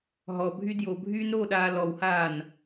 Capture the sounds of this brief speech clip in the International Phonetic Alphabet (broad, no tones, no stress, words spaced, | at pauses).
ɦɔbʱy djobʱyːnɾoːɗaː lɔwhaːn